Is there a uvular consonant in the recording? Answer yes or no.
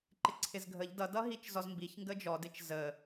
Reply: no